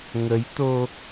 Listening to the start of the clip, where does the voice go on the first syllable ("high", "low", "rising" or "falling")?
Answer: rising